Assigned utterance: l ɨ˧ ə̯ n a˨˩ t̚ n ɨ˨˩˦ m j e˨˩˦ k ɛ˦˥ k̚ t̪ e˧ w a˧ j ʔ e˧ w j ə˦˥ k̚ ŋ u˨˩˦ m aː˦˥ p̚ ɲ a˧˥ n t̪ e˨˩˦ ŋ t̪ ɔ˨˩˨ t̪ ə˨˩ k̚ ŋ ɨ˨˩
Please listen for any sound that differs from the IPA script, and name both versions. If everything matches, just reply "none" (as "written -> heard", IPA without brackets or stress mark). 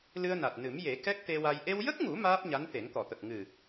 none